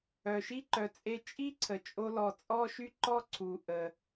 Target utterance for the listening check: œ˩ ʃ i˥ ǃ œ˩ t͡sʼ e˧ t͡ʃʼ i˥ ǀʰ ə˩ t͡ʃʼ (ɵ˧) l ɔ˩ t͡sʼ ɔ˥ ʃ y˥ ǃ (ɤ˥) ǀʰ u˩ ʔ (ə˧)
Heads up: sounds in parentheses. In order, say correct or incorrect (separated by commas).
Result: incorrect, incorrect, incorrect